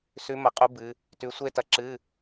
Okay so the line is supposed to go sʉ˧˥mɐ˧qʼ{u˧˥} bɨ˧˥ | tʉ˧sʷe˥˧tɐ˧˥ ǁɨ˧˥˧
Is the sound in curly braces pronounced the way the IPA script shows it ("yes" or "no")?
yes